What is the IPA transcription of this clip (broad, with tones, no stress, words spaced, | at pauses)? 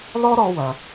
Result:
lɔ˥ɾɔ˧wɐ˩